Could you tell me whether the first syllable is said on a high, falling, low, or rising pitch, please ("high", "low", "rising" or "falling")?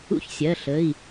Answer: high